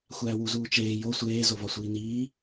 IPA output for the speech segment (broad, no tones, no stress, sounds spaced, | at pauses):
xʷ æː w u z uː t͡ʃ eː j o sʷ eː z o v ɒ sʷ iː n iː